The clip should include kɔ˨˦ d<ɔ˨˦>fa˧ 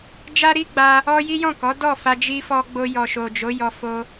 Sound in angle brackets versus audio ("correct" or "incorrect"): incorrect